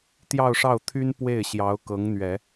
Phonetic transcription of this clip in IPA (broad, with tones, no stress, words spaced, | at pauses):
t̪jɑ˥˧ʊ̯ʂɑ˥˩ʊ̯t̪ʰy˥n pwe˥˩ɪ̯ɕjɑ˧˥ʊ̯kɤ˧˥ŋ n̪ɥɛ˨˩˦